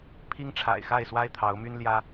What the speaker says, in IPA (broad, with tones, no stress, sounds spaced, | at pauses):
pʰ i˦ ŋ ʈ͡ʂʰ a̰˨˩ ɪ̯ x a˥˨ ɪ̯ s w a˦ ɪ̯ t̪ʰ ɑ˨˦ ʊ̯ m y˦ n l j ä˦